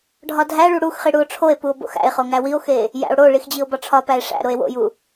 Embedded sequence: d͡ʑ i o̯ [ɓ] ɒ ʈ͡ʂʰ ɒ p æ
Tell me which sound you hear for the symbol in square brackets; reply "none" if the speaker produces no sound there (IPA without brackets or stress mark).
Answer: b